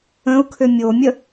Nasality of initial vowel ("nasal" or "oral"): nasal